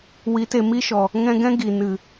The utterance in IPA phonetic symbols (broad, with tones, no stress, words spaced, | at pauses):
wi˨˦te˨mi˦ʃɔ˨ | ŋɛ̃˧ɡɛ̃˦ ɡi˨ nɨ˨